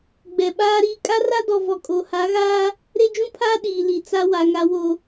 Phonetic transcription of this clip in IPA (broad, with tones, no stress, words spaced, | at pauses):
ɡ͡bɛ˨ɓaː˦ɾiː˦ kʼa˦ra˦dɔ˨ vɔ˨kʼo˨ ha˨˦ɣaː˦ | ɾe˦d͡ʒũ˦pʰaː˦ ɗiː˨li˨t͡sa˦wa˨ ŋa˨wo˨